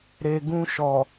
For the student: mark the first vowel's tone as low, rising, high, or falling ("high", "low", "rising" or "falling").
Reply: low